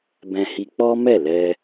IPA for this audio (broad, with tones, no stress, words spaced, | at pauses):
bɛ̃˧hi˧ k͡pɔ˦mɛ˦˨lɛ˧